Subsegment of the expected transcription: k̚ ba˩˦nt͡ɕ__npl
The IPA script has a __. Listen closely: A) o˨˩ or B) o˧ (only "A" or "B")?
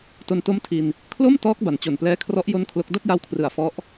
A